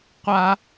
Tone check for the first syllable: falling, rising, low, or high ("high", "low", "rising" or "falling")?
high